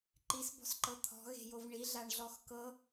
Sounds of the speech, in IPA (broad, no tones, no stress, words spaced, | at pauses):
ǃisbɔ̤sǃɤ t̪ʰɔ̤ɣe̤jov ɳiɮaɳɮɔx kɤ